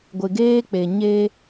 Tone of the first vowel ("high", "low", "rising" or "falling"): low